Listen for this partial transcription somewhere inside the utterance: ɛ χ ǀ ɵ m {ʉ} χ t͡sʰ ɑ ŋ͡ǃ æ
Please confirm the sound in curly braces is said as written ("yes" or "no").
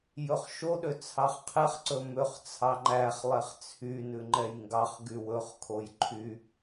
no